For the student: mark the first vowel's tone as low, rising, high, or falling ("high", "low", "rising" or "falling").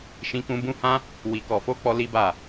high